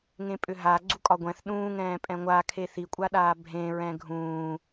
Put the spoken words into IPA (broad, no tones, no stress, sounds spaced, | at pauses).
ŋ ẽ pʼ ʏ ɦ a ɡ͡ǀ u kʼ ɒ ɡʷ ɛ̃ θ ɗ ũː ŋ ɛ̃ː pʼ ɛ̃ ŋʷ a kʰ e θ i kʷʼ a ɗ aː bʱ ẽ ɹ ɛ̃ ɡʱ ũː